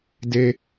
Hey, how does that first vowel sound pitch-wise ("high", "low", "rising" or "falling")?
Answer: high